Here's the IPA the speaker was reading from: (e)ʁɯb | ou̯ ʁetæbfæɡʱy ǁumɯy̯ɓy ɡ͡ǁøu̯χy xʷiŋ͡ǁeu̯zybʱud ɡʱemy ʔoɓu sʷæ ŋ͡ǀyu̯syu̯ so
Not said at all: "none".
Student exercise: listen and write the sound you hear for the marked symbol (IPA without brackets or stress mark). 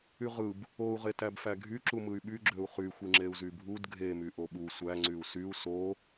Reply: y